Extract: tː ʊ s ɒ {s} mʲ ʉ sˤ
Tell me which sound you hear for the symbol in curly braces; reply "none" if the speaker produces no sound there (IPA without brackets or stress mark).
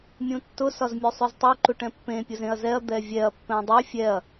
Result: z